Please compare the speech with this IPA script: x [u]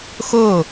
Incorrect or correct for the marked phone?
incorrect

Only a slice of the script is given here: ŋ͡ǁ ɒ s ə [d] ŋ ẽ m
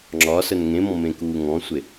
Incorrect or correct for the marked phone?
incorrect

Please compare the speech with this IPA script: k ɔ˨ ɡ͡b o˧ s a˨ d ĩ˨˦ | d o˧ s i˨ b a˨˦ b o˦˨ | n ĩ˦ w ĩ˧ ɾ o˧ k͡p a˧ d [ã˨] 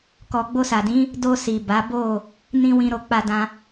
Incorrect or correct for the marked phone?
incorrect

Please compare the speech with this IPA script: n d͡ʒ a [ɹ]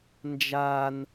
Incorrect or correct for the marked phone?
incorrect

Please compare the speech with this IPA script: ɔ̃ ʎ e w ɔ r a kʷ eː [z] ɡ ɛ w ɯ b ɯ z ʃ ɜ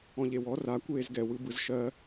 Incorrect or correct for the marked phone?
correct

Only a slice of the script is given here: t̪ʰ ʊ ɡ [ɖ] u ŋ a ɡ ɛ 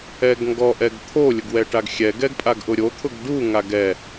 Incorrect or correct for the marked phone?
correct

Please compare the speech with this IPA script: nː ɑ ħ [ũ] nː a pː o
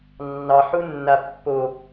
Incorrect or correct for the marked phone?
incorrect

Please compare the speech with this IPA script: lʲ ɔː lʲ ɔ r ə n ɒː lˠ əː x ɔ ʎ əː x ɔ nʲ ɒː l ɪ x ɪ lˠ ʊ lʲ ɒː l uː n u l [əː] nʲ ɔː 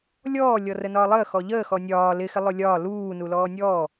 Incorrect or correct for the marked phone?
incorrect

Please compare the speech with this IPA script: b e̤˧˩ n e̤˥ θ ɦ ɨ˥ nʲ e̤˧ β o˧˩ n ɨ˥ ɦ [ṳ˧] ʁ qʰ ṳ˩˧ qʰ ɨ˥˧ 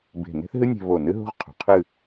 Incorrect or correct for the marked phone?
incorrect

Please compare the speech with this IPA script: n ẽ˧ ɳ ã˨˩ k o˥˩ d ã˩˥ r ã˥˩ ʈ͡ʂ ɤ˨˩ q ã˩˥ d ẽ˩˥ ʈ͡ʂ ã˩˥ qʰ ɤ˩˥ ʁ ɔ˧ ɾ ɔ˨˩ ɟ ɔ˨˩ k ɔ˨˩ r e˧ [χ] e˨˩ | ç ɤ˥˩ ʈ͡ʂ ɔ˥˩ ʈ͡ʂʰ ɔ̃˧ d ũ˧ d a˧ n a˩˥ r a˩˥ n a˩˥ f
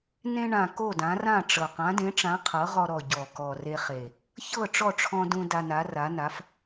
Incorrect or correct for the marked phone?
correct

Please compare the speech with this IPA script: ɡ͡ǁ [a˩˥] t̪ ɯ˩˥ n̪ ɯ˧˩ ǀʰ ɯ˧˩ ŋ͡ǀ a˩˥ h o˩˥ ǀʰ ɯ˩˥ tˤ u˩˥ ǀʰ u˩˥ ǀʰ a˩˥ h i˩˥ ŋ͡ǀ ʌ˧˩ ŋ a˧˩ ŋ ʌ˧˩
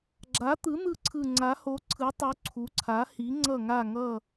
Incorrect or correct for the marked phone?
correct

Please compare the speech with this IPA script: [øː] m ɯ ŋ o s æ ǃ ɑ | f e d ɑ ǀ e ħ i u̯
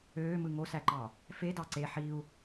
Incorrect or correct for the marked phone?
correct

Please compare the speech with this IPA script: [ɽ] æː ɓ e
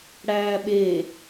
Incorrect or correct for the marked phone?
correct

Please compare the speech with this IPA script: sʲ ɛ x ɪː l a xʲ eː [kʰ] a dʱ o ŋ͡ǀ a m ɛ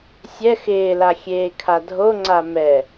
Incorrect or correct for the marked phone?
correct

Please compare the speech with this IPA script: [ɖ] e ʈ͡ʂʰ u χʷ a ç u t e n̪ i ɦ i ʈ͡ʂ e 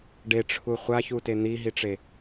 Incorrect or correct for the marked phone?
correct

